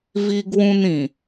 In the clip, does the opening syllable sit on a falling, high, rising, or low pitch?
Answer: high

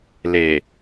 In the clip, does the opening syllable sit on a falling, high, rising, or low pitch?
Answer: low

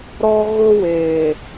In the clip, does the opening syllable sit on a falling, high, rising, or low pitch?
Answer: high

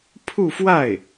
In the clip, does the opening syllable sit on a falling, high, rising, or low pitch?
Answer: falling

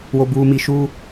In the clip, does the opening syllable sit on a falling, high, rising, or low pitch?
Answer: low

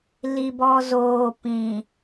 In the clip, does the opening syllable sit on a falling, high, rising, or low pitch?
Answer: low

